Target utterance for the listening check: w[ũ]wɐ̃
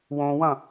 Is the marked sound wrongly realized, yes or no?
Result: yes